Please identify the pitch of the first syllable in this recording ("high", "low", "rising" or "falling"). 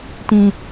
high